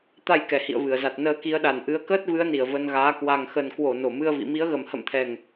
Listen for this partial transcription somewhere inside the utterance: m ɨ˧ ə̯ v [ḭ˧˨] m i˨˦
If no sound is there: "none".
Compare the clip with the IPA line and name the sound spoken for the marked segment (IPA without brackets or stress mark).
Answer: ḭ˧˨